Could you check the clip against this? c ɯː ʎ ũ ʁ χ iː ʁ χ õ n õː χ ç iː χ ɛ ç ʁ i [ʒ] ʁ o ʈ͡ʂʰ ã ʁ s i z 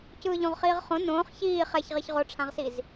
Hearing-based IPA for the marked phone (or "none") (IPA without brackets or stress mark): ç